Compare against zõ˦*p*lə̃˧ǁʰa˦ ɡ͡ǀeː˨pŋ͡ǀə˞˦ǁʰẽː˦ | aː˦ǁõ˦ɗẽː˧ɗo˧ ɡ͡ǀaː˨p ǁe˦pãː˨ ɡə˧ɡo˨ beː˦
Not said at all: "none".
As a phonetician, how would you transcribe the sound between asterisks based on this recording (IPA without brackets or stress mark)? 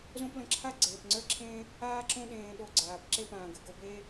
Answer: p